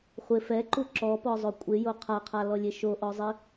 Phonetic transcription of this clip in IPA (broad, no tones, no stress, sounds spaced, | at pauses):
χʷ ɪ f ɛ ǃ u ǁ ɔ p ɔ zˤ o kʷʼ ɪ j o qʰ a qʰ a l ɔ lʲ e ʃ o ʔ ɔ zˤ i